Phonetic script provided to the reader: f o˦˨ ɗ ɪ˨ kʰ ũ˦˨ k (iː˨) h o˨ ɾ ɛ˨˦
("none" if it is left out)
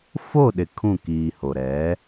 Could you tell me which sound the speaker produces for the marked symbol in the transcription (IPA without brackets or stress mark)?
iː˨